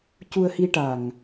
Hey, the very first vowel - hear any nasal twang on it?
no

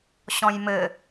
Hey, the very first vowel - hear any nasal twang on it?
yes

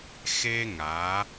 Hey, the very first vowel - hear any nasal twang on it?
no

